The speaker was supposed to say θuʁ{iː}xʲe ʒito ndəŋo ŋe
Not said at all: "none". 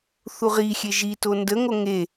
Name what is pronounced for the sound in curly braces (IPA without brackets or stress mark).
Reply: i